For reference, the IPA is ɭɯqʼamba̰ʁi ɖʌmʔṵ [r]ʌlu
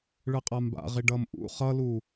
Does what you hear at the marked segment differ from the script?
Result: yes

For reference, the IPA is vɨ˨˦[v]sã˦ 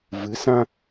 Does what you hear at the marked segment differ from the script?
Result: yes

